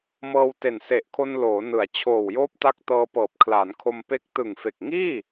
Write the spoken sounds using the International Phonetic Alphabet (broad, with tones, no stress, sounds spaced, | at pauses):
m ɤː˧ w t e˨˩ n s e˨˩ ʔ kʰ o˧ n l oː˩˦ n ɯ˩˦ a̯ t͡ɕʰ oː˨˩ w j oː˦˥ p̚ t a˦˥ k̚ t ɤː˧ p ɤː˨˩ p̚ kʰ l aː˩˦ n kʰ o˧ m p e˦˥ k̚ t ɯ˨˩ ŋ f e˨˩ k̚ ŋ iː˥˩